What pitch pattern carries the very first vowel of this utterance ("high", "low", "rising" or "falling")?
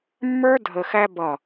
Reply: high